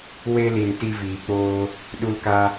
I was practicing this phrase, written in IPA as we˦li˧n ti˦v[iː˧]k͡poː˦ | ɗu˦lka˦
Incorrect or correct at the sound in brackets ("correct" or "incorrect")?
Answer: correct